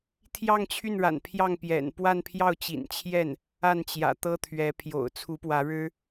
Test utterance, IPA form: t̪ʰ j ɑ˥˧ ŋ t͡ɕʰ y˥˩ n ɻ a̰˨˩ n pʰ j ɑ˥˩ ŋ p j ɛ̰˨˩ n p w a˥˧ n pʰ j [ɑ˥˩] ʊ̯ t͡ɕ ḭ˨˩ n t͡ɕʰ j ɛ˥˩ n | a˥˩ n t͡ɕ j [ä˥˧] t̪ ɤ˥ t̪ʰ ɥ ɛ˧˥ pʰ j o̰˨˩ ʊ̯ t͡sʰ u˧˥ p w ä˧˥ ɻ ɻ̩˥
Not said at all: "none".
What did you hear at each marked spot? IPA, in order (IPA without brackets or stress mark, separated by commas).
ɑ˥˩, ä̰˨˩